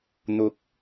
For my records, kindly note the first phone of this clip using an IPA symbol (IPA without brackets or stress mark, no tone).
n̪